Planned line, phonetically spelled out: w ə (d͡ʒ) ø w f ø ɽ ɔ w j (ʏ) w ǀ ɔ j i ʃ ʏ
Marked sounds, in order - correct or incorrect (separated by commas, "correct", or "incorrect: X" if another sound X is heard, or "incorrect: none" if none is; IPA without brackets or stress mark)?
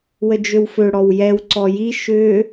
correct, incorrect: ɛ